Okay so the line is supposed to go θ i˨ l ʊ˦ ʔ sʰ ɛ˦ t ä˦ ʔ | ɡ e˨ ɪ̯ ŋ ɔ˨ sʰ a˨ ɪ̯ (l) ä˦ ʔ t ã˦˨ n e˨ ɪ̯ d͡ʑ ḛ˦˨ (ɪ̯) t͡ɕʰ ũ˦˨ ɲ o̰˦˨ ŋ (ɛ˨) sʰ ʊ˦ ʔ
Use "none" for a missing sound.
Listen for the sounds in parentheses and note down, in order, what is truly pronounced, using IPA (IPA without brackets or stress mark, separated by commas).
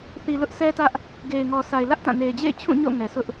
l, ɪ̯, ɛ˨